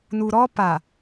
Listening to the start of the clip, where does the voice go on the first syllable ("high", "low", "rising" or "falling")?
low